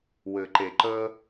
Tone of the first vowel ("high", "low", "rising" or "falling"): low